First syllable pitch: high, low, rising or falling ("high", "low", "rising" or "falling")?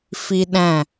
high